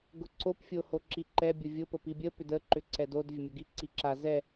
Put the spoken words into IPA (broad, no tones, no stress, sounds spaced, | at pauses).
ɡ ʊ ǀ o p fʲ o h o ǁ i ǃ ɛ bʲ ʊ vʲ ʊ p ə p i bʲ ə p ʏ d ə ǃ ʏ ǀ ɛ d o d vʲ ə mʲ o ɡ i ǀ i ǁ a z ɛ